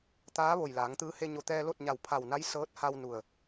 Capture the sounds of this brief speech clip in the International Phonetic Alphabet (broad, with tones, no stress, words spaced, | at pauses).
t̪aː˧˥ ʋo˧˩jlaː˩˧ŋt̪ɯː˧˥ he˧ɲo˧˩t̪ɛː˧ lo˥˨t̚ɲa˧˩wpʰa˧˩wna˧˥j sɤː˧˥t̚ha˧w nu˧˩ə̯